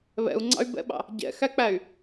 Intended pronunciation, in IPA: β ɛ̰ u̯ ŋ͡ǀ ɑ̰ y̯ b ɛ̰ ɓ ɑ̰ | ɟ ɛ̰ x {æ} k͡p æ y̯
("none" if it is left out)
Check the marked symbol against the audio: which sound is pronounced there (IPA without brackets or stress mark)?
æ